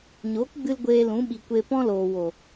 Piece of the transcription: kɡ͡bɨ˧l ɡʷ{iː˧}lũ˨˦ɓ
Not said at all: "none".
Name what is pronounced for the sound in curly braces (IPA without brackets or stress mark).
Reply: eː˧